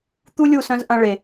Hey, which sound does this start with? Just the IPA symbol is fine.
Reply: t̪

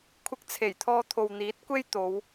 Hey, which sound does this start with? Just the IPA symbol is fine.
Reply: kʷʰ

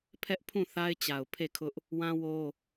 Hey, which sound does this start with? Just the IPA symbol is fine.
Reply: pʰ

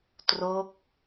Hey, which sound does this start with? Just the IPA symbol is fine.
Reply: t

